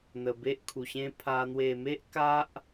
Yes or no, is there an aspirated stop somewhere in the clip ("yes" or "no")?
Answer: yes